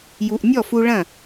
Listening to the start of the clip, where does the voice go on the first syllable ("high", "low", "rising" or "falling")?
low